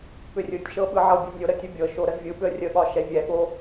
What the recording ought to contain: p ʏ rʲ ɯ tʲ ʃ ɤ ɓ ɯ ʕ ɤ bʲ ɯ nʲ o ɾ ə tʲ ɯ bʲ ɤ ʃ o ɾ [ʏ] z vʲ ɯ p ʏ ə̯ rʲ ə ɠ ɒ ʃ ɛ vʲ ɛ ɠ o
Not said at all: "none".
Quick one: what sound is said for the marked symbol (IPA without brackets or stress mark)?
ə